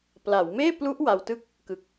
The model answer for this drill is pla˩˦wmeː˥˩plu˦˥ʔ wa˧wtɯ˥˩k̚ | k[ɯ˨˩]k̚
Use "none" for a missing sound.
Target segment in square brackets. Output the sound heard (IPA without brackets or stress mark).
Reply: ɯ˨˩